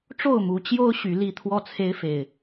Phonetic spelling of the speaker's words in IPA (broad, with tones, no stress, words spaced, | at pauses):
ʈ͡ʂo˥˨ʊ̯mu˨˦ t͡ɕjo˦ʊ̯ ɕy˨˦ li˥˨ t̪ʰwɔ˥˨t͡sʰe˦ɪ̯fe˨˩ɪ̯